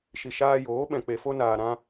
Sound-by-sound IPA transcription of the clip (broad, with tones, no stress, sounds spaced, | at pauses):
ʃ i˧ ʃ aː˧ j oː˨˦ ɓ ɛ̃˧ k͡p e˧ f o˦ n aː˧ ɾ ã˦